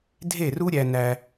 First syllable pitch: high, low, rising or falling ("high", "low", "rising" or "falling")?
falling